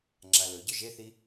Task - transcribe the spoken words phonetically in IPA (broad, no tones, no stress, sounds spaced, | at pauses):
ŋ͡ǁ a l ɵ ɟ ɵ ʒ e θ i